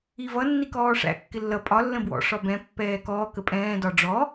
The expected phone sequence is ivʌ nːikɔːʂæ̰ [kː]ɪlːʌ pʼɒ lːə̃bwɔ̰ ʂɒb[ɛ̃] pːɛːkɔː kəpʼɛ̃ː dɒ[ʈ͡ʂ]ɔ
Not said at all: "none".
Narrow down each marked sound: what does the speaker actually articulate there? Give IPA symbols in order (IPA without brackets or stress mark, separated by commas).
kː, ɛ̃, ɖ͡ʐ